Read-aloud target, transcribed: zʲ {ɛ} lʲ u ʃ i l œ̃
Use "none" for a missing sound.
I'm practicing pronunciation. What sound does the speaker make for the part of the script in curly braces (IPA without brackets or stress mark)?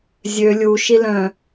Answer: ø